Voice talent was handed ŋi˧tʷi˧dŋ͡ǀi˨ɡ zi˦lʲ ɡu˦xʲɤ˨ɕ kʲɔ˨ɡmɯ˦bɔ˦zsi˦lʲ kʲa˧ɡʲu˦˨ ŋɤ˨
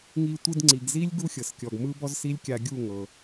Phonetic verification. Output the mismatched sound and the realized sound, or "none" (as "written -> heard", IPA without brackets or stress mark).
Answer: ɕ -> s